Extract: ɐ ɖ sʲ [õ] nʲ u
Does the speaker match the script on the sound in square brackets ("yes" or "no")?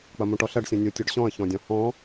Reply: no